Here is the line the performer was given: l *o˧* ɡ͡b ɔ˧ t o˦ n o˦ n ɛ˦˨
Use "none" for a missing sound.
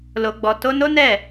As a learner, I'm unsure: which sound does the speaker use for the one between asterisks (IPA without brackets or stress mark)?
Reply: o˧